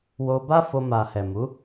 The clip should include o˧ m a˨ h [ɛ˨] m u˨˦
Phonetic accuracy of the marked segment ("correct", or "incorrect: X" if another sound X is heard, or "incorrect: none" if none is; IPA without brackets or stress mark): correct